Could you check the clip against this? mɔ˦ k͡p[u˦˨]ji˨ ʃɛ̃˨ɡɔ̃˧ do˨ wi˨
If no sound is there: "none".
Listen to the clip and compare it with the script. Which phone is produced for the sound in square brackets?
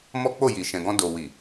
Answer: o˦˨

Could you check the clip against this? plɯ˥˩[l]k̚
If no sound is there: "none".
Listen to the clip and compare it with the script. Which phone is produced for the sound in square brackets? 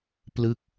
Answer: none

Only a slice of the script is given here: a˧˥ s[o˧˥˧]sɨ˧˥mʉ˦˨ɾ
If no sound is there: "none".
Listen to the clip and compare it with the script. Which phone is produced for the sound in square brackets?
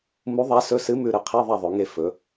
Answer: ɵ˧˥˧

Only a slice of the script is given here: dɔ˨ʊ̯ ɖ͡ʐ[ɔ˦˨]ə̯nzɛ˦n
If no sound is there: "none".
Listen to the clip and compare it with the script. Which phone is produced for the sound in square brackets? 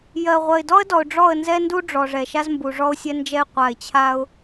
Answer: ɔ˦˨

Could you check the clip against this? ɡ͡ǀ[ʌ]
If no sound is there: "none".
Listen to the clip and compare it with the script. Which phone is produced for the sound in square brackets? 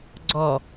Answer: ɔ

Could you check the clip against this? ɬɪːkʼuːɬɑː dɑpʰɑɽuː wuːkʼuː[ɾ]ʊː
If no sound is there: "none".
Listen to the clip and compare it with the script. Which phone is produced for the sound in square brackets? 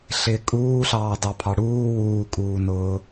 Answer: n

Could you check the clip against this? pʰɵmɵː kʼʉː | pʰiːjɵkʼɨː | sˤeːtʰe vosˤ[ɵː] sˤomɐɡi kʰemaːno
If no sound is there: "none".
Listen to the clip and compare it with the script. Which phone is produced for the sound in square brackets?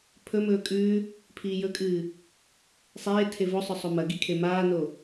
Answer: ɵ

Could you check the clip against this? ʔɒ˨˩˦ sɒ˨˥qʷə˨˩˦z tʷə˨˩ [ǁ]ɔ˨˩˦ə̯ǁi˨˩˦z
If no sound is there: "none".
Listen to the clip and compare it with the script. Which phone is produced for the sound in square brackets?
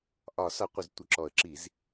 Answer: ǁ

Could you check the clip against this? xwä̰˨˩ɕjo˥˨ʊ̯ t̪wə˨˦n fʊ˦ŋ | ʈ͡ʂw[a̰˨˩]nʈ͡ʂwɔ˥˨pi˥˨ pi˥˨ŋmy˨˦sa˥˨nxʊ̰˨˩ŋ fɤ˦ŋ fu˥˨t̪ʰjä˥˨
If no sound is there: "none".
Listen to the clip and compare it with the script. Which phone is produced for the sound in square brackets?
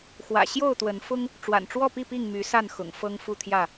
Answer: a̰˨˩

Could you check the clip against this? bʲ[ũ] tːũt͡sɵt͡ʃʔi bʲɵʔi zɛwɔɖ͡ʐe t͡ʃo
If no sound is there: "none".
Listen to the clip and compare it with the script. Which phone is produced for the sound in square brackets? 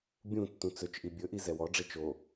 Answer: ũ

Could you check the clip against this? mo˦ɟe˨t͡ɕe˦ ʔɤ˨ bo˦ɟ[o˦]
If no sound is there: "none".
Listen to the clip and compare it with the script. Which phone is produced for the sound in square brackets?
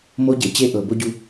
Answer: u˦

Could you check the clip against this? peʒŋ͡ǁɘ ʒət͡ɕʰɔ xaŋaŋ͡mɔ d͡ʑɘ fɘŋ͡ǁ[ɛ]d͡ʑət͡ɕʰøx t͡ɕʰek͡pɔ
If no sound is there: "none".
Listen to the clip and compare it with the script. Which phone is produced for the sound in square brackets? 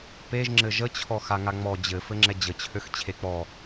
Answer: ɛ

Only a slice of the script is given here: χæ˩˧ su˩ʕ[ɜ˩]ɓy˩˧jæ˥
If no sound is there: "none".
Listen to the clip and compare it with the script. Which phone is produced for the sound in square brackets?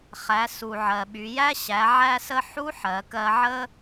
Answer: ɜ˩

